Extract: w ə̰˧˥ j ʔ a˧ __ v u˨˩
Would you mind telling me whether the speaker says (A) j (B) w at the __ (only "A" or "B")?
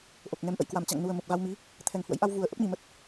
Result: B